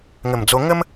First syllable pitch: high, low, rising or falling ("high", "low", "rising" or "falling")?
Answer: low